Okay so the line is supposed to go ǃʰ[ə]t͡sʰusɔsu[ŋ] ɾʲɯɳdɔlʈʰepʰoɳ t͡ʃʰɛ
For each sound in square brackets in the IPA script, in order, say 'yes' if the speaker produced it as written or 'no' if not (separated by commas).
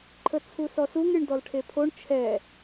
yes, yes